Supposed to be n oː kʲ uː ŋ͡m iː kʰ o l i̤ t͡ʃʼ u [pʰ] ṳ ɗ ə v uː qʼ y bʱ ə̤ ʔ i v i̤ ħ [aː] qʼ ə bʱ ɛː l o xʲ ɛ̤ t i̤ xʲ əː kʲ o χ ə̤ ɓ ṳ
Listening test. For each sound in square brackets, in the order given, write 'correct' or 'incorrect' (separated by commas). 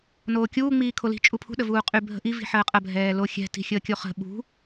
correct, incorrect